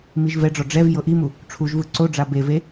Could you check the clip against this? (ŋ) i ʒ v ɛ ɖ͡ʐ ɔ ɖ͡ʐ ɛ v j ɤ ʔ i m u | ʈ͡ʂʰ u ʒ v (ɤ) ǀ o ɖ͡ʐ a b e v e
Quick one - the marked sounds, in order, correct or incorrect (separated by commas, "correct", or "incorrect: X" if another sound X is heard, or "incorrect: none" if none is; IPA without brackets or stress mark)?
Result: incorrect: m, incorrect: ɯ